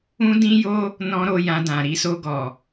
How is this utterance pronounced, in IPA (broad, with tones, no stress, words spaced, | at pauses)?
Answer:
ũ˦dĩ˦jo˦ | nɔ̃˦ɾo˧jã˧dã˨ ɾi˧so˧ɡɔ˨